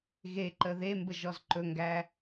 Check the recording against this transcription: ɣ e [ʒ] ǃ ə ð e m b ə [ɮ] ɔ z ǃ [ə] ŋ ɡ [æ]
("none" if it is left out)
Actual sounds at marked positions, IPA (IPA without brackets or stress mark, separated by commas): none, ʒ, ɵ, æ